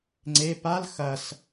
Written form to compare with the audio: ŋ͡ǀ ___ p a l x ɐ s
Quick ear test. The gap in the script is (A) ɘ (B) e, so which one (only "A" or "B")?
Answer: B